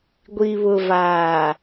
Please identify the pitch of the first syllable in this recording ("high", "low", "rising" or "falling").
low